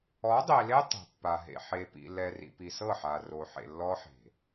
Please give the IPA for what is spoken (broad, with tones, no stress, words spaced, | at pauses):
ɔ˨˦dˤi˨le˦ tˤe̤˨pːa˨ɦḛ˨ ħe˨pḭ˨ lɛ˨rḭ˨pi˨ sɤ˦˨ħa˨ro˨ħḛ˨ lːɔ˦ħe̤˨